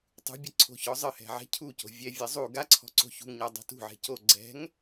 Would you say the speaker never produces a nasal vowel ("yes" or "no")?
yes